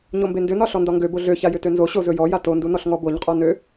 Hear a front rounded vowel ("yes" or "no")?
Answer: yes